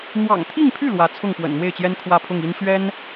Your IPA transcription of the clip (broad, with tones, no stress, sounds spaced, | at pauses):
n̪ w ɑ̰˨˩ ŋ t̪ʰ i˥˧ ŋ pʰ y˥˩ l w ä˧˥ t͡sʰ ʊ˥˩ ŋ p w ə̰˨˩ n n̪ w e˥˩ ɪ̯ t͡ɕ j ɛ˥ n kʰ w ä˥˧ pʰ ʊ˥˩ ŋ i˥ n ɕ ɥ ɛ˥ n